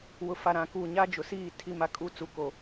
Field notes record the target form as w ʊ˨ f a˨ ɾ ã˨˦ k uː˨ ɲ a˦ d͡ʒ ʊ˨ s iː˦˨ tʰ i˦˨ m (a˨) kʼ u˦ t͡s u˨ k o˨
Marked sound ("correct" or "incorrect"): incorrect